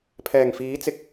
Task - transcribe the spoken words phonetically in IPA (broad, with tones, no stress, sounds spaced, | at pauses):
pʰ ɛː˨˩ ŋ f iː˨˥ t͡s ɪ˨˥ k̚